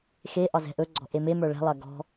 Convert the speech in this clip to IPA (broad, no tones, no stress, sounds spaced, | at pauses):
x e ʔ ɒ z ɛ̤ ʔ ɵ ɡ͡ǀ ɔ̤ ʔ e m e m ə˞ ɭ ɛ̤ lˠ ɐ ɡ ɔ̤